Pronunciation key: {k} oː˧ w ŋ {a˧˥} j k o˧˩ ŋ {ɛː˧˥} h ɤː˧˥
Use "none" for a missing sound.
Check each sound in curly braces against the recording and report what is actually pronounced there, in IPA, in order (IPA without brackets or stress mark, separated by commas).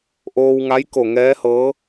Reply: ʔ, a˧˥, ɛː˧˥